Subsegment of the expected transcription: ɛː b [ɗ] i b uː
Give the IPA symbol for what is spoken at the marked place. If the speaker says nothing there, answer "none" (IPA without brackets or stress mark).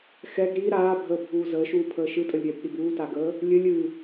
ɗ